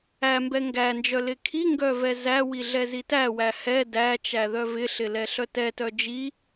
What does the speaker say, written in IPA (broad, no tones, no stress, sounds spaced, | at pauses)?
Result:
æ m b ɛ ŋ ɡ æ n d͡ʒ œ l ɪ kʰ i ŋ ɡ œ v ɛ z æ w i ɮ ɛ z i t æ w æ h ɛ d æ t͡ʃ æ ð œ v ɪ ɬ ɪ l ɛ ɬ œ t ɛ t œ d͡ʒ i